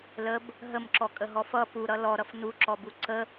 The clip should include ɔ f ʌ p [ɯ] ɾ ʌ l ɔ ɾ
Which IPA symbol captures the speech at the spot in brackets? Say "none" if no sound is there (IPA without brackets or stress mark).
u